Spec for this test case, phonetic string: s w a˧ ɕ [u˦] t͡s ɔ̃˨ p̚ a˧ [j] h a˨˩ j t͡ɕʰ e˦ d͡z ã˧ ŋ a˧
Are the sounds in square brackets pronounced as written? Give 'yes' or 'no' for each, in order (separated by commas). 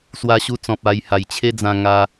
no, yes